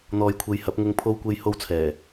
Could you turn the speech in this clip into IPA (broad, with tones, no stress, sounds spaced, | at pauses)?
n̪ ɔː˨ j kʷʰ e˨˧ j h ɐ˨˥ p̚ ŋ ʊ˧ ŋ pʰ o˧ w kʷ e˧ j h o˧ w t͡sʰ ɛː˨˩